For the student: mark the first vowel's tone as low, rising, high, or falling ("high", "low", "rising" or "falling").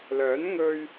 rising